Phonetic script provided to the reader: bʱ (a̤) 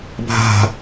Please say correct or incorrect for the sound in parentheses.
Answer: correct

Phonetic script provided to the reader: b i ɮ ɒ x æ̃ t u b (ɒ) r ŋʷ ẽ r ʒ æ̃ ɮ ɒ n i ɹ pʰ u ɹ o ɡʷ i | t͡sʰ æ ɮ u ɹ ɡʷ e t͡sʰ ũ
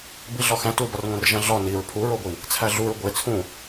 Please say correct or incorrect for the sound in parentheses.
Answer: correct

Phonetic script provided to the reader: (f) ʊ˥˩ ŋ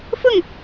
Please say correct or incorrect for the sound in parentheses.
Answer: correct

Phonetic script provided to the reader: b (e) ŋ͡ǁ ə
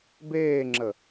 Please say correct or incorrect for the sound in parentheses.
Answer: incorrect: eː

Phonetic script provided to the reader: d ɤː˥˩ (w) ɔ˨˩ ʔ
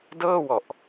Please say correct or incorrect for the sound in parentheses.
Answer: correct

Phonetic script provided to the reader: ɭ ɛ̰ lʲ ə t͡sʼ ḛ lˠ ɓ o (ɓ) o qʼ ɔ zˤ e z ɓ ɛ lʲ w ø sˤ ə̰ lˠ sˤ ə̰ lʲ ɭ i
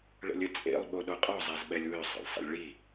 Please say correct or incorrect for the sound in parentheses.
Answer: incorrect: ɗ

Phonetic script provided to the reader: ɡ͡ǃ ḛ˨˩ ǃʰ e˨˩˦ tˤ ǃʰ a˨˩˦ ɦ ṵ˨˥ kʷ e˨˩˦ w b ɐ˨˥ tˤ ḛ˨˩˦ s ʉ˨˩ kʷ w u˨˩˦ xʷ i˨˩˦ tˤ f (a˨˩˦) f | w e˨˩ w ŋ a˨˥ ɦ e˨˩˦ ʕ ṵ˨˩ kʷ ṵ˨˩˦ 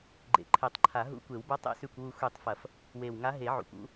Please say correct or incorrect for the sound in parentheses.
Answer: incorrect: ɐ˨˩˦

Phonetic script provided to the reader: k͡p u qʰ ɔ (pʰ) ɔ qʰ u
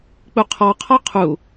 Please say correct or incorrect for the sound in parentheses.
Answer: incorrect: qʰ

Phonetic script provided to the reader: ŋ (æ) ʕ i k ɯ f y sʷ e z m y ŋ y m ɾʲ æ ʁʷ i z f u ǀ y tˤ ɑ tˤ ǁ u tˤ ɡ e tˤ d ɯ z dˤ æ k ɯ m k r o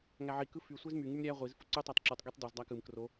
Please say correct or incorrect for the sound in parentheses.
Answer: correct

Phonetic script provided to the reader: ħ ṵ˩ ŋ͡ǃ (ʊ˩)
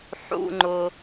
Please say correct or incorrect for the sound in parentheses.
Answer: correct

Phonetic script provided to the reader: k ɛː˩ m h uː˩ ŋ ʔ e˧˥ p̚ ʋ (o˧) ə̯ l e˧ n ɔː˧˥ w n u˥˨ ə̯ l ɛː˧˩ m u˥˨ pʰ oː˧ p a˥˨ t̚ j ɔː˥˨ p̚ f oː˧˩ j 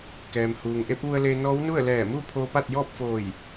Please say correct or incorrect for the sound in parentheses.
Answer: incorrect: u˧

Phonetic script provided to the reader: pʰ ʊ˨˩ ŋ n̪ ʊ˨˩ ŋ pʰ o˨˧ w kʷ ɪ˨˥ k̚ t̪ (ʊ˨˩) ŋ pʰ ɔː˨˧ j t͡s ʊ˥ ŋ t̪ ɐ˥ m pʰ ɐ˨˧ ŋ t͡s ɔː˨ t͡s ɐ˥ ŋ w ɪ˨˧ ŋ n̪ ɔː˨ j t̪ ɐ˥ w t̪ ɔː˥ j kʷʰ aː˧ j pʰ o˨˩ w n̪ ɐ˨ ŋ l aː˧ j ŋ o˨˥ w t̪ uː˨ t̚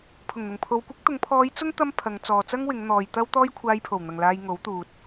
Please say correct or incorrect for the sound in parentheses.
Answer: incorrect: ʊ˨˧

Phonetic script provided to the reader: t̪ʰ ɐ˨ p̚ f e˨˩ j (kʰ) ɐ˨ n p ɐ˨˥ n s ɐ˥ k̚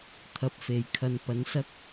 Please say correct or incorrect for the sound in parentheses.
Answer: correct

